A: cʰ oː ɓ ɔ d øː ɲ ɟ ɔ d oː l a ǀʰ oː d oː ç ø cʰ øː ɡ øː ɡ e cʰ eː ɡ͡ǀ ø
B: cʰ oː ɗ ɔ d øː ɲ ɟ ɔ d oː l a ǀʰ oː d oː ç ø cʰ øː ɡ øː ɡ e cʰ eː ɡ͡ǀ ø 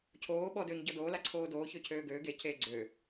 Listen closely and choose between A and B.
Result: A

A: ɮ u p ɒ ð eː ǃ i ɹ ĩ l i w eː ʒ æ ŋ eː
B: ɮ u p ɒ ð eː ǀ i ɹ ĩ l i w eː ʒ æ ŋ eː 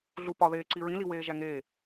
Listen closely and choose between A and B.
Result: B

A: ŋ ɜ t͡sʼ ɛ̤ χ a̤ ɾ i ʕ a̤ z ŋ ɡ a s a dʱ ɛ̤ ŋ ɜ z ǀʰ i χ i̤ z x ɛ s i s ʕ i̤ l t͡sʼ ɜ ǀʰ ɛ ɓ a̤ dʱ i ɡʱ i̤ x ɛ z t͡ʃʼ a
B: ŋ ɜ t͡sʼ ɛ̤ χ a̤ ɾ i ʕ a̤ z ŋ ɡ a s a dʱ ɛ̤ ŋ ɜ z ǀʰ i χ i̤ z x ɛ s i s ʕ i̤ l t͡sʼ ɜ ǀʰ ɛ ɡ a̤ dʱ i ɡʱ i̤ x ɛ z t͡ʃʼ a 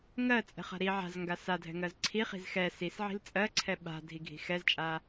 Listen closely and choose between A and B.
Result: A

